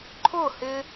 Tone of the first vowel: falling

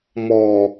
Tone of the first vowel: low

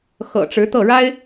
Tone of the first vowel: low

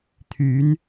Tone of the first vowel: rising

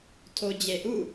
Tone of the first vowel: low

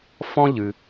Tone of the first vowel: high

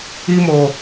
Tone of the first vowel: high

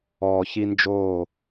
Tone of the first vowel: low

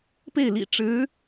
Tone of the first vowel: falling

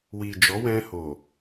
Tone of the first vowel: low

